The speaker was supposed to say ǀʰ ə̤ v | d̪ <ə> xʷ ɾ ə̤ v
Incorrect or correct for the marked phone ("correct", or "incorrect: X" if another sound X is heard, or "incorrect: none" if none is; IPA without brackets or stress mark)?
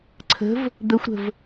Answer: correct